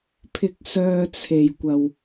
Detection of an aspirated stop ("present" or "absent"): present